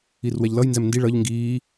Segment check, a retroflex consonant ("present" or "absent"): present